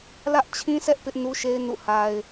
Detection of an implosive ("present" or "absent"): absent